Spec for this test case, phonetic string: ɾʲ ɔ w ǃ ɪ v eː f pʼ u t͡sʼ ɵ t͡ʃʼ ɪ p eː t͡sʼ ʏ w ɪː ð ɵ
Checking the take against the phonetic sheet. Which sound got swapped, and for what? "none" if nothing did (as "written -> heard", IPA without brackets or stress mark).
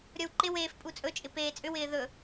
v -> w